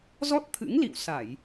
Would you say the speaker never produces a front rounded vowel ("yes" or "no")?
yes